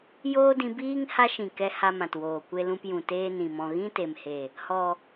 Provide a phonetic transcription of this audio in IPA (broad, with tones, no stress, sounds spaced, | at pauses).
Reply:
j oː˦ d ĩ˧ b iː˦ ŋ h a˦ ʃ ĩ˨ k ɛ˧ h a˦ m ã˨ t w oː˨ kʷ e˧ l ũ˧ p j ũ˨ t eː˦ n ĩ˨ m ɔ̃˧ ɣ ĩ˦ t e˨ m h e˨ | h ɔ˨